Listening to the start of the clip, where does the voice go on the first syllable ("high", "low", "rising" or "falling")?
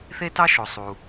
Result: high